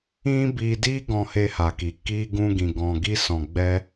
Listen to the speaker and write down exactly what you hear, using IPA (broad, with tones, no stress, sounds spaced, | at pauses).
ĩ˦ b i˧ d i˦ ɡ ɔ̃˧ h e˧ h a˨ k i˨ k i˧ ɡ ũ˧ ɡ ĩ˨ ɡ ɔ̃˨ ɡ i˧ s ɔ̃˨ ɡ͡b ɛ˧